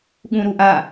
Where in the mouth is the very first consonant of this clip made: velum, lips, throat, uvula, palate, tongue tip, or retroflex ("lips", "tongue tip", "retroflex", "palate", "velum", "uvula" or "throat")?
velum